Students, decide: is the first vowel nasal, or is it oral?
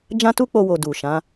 nasal